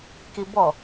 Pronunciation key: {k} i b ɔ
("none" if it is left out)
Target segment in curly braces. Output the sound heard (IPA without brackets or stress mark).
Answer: k